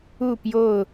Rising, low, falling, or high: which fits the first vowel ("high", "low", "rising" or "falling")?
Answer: falling